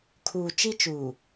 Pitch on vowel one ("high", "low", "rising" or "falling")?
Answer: low